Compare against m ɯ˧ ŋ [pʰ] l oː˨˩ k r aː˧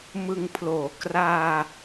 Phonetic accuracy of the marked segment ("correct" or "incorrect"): correct